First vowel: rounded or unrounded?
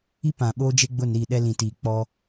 unrounded